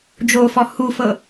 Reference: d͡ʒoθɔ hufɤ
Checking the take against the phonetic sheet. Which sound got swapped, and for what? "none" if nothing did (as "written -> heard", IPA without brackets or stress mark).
θ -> f